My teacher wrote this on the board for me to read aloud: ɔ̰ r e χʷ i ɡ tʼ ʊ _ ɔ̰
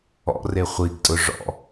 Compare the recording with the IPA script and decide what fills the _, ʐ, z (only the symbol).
ʐ